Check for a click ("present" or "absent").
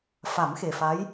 absent